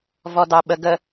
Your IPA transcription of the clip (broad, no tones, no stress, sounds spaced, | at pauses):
v ɔ d ɑ ɓ ə ɡ ə